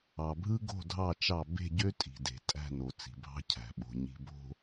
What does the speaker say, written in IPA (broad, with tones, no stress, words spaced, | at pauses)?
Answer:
ɑ˨bʱɯ˦ ɡo̤˦˨dʱɑ˦˨t͡ʃɑ˦˨ be̤˦˨ɟø˦ tʼi̤˨de̤˨ tʼæ̤˦˨no˨ t͡si̤˨bʱɑ̤˦ cʰæ̤˨ɓo̤˨ ɲi̤˨ bo̤˨